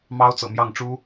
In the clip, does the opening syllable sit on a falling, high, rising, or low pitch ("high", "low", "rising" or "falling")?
high